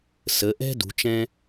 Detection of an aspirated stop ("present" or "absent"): absent